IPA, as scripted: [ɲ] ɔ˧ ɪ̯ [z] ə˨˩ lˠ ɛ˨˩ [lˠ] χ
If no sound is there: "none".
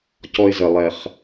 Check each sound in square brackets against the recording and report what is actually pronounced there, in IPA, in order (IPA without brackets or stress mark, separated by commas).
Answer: c, z, none